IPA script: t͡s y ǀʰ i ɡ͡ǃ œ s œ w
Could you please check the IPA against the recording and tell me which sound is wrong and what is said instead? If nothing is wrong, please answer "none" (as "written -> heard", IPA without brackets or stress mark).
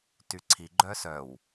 t͡s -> t